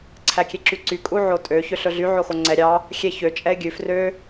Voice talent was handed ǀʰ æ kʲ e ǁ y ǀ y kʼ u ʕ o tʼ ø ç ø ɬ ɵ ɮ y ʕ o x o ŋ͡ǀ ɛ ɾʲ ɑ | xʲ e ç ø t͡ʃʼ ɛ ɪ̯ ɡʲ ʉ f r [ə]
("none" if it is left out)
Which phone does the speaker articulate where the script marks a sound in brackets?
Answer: ø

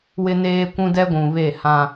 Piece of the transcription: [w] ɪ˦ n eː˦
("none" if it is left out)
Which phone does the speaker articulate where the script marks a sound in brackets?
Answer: w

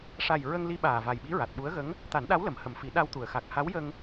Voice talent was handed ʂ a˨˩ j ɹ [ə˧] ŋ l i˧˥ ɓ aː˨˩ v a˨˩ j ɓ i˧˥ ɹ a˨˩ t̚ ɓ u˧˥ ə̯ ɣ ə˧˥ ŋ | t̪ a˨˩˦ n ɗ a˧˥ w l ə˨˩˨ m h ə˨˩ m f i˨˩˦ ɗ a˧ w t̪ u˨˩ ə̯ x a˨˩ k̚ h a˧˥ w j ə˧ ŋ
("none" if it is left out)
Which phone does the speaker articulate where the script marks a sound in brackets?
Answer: ə˧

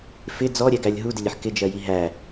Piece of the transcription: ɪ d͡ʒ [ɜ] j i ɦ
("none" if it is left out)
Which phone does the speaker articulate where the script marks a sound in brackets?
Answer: ɜ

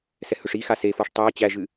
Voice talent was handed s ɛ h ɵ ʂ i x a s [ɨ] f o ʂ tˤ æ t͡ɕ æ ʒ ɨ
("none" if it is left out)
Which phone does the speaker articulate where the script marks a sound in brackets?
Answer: e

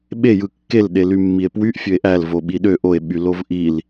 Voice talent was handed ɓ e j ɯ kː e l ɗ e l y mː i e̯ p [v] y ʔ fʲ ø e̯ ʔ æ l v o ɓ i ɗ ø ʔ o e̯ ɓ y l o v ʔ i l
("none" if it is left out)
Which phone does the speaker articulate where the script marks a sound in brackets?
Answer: w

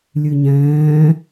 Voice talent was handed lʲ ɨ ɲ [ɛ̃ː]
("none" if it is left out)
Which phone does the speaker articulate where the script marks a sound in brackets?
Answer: ɛ̃ː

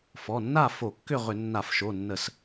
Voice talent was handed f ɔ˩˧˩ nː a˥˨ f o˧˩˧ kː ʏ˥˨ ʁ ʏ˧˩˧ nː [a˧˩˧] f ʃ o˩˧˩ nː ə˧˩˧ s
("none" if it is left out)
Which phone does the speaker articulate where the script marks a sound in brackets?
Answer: a˧˩˧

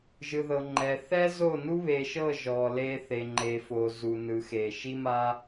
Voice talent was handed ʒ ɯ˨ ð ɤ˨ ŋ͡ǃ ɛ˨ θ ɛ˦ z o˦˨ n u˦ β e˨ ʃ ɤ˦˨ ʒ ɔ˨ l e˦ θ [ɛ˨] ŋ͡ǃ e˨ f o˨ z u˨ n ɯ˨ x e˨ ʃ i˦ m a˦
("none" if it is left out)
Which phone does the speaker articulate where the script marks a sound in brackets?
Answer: e˨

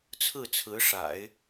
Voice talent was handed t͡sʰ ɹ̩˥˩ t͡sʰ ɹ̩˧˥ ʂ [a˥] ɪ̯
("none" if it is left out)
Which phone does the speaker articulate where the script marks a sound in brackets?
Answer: a̰˨˩˦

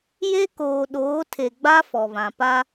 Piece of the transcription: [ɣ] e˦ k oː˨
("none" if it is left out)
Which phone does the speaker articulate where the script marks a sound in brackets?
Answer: j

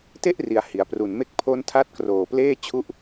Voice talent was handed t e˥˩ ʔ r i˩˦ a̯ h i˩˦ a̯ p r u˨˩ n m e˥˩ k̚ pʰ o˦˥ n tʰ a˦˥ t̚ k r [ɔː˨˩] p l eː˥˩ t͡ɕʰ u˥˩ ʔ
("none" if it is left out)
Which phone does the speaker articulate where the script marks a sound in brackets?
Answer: oː˨˩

